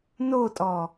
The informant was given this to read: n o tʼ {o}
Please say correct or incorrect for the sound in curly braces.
incorrect